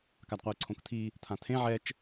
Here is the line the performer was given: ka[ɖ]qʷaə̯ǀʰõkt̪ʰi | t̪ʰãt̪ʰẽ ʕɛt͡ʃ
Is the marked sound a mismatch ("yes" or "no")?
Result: yes